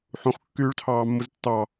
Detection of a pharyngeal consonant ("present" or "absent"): present